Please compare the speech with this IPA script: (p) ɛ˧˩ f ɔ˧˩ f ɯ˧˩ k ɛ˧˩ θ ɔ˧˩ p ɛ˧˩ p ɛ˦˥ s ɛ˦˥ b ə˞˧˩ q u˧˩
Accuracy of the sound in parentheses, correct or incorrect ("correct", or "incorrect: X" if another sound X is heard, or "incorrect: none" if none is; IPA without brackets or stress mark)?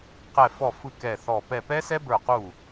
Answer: incorrect: q